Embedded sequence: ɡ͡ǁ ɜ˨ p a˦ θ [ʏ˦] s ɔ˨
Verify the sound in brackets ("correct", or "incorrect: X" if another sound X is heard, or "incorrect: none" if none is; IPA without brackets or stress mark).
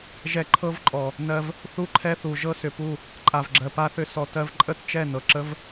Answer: correct